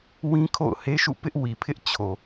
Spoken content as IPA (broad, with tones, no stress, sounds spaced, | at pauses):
w ĩ˦ kʰ o̰˦˨ ʊ̯ h e˦ ʃ ṵ˦˨ p ɪ˦ ʔ w i˨ pʰ ɪ˦ ʔ t͡ɕʰ o˨